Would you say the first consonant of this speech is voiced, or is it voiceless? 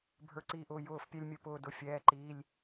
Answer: voiced